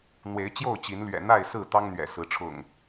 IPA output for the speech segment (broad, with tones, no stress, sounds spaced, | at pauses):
n̪ w e˨˦ ɪ̯ t͡ɕ j o˥˨ ʊ̯ t͡ɕ i˨˦ n l ɥ ɛ̰˨˩ n̪ a˥˨ ɪ̯ s ɹ̩˥˨ t̪ ɑ˦ ŋ n̪ ɥ ɛ̰˨˩ s ɹ̩˨˦ ʈ͡ʂʰ ʊ̰˨˩ ŋ